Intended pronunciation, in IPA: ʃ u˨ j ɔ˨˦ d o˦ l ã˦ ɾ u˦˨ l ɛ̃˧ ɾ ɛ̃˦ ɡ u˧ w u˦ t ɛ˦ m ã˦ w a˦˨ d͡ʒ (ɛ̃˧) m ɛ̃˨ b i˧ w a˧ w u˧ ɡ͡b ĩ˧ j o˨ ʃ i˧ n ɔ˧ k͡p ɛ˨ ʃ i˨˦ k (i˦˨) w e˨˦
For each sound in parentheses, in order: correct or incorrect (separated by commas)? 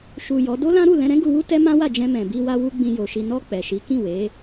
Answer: correct, incorrect